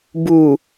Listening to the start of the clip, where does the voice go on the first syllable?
low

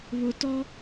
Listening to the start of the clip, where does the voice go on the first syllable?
low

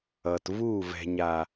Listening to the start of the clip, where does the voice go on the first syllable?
low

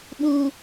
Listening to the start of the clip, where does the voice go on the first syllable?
low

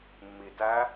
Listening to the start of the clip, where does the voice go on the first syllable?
low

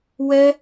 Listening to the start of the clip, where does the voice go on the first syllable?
high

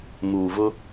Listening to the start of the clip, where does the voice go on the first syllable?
low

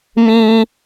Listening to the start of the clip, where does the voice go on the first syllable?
high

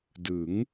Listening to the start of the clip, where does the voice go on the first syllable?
rising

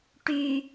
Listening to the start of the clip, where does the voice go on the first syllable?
low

